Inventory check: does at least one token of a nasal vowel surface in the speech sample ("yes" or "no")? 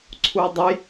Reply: no